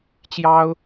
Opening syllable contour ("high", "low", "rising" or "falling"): high